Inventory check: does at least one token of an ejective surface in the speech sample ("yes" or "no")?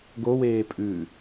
yes